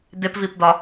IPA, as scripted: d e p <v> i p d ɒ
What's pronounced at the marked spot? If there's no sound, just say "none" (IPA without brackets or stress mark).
v